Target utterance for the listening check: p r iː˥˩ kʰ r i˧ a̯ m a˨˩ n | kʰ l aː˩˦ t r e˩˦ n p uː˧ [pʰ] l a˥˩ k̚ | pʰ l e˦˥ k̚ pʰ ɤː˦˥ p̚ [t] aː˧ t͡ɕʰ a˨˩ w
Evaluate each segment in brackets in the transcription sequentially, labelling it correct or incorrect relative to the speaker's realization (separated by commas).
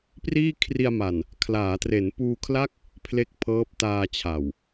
incorrect, correct